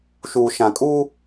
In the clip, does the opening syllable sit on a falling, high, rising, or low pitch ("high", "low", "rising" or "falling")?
low